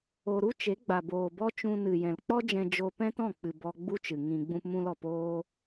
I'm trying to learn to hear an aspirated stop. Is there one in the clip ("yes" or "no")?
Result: no